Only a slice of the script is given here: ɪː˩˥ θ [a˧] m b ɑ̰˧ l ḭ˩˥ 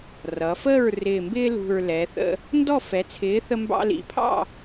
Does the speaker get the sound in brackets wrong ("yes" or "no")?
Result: yes